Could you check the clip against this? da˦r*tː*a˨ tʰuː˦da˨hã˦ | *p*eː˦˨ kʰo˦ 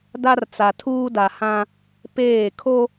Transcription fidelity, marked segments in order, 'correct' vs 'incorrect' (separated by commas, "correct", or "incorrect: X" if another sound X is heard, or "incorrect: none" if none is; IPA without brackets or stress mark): incorrect: t͡s, correct